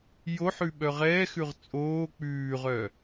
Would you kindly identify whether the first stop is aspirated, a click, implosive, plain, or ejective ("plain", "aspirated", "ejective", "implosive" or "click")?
implosive